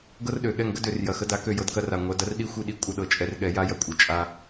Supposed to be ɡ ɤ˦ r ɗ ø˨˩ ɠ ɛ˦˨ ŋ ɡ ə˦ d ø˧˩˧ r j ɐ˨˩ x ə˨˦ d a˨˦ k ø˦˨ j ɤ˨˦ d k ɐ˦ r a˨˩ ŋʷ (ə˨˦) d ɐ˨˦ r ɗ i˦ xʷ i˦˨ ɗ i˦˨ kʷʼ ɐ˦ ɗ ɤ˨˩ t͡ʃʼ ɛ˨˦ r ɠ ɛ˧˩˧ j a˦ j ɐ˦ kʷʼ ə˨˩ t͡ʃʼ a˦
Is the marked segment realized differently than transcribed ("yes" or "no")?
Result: yes